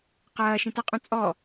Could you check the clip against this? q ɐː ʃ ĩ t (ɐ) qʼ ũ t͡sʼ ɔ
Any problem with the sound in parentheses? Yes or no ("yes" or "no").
no